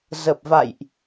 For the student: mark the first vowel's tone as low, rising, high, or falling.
low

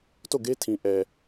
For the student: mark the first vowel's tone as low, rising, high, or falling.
falling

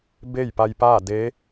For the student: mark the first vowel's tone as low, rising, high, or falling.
falling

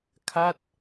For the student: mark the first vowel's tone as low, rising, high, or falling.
falling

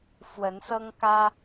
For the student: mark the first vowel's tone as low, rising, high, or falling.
rising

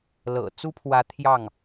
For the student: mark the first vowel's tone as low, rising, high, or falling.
low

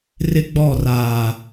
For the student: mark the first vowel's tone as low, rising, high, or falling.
high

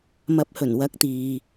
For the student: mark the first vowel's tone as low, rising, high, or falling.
rising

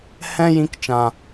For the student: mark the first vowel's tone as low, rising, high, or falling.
high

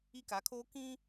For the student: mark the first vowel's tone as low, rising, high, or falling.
high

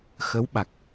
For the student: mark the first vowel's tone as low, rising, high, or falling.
rising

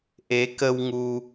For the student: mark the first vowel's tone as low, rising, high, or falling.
rising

